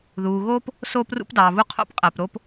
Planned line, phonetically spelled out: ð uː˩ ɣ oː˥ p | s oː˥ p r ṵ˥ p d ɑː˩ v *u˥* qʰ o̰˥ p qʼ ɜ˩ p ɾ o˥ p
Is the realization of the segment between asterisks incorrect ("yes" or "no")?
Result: no